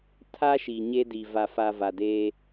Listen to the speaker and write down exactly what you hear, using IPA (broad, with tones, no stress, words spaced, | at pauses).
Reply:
tʰa˦ ʃi˨ɲe˦di˨ va˨fa˨ va˨deː˦